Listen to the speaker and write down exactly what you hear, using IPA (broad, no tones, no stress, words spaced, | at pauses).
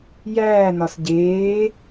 jæːnɒs ɟeː